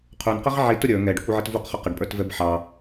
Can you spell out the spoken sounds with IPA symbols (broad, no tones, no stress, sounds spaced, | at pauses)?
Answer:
qʰ u n q ə ʁ ʕ i t ʊ ɾʲ ə˞ ŋ ɛ ɖ ə kʷ i ʕ ɪ t v u q χ ʊ q ə ɖ pʼ ə˞ t v ɛ b ħ ɑ